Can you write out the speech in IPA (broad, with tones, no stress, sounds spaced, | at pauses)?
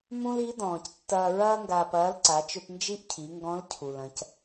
m ũ˥ l i˧˥ d ɔ̃ː˩ c tː ɐː˧ ɹ ɐː˥ ŋ ɡ aː˧ p ɐː˧˥ l ǀ a˩˧ t͡ʃ ɵ˧ p n d͡ʒ i˥ ʔ cʰ i˩˧ ŋ ɡ ɔ̃˧˥ l cʰ u˩ l ɐ̃˩˧ c